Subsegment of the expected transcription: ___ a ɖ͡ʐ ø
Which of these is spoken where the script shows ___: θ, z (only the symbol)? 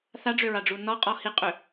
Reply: θ